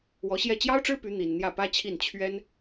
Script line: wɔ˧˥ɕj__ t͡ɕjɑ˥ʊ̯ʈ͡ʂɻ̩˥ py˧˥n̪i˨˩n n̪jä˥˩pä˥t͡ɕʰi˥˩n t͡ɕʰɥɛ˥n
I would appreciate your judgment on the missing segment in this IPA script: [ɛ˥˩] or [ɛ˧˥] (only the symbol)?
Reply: ɛ˥˩